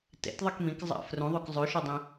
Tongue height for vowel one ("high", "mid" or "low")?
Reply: mid